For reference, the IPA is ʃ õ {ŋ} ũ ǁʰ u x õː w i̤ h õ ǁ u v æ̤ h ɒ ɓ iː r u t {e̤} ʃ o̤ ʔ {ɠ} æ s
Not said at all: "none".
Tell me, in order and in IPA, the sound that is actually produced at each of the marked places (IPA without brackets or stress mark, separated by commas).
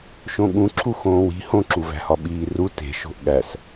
ɠ, e̤, ɠ